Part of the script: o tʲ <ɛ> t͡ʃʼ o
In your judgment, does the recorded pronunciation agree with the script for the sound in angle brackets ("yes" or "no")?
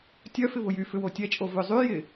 yes